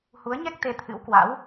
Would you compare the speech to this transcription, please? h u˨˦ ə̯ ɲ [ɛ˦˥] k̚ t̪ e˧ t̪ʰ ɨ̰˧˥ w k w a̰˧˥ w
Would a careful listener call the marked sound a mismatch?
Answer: no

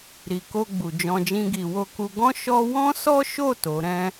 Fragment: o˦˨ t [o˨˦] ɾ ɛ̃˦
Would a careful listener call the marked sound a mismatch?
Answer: no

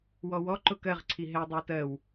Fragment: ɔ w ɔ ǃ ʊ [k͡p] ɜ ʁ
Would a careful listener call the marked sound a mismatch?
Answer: yes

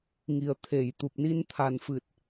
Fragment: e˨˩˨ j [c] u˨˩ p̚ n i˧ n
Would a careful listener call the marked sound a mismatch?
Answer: yes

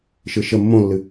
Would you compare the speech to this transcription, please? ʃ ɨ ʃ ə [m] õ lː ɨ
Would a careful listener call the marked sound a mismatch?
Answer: yes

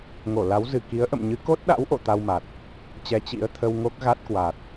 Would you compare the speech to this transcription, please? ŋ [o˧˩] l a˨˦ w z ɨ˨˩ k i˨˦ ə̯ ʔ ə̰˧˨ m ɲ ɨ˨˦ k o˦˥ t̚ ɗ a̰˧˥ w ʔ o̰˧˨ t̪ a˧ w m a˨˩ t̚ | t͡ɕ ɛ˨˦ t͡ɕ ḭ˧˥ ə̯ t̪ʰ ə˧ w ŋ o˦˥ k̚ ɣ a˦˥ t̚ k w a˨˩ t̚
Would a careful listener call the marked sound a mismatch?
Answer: no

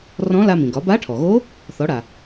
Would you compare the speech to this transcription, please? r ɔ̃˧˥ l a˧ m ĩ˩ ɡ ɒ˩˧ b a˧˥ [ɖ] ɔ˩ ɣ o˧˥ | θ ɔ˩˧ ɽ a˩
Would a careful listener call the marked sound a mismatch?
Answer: yes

